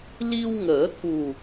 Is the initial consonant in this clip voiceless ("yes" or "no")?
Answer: no